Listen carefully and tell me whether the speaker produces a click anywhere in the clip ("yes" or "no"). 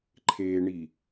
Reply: yes